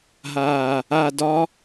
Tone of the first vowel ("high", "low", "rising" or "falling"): low